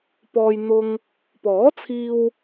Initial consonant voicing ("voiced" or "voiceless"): voiceless